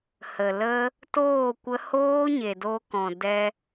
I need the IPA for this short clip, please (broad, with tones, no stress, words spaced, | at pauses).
hə˨lə˦ | toː˦˨ kʷə˧hoː˦ ɲe˨doː˧kɔ̃˨dɛ˧